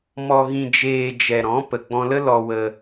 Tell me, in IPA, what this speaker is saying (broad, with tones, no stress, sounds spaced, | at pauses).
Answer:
m ɔ˧ ɣ ĩ˧ d͡ʒ eː˧ d͡ʒ ɛ˨ ɾ ɔ̃˨˦ p ə˨ ɡ͡b ɔ̃˧ l ə˦ l ɔ˧ w ə˧